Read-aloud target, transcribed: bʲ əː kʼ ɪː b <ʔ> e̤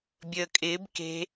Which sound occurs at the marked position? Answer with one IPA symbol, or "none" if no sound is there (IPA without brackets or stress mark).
k